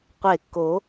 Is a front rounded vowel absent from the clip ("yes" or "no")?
yes